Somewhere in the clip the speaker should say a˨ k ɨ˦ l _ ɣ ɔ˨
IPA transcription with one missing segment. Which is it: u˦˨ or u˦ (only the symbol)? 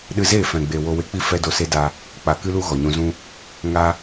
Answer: u˦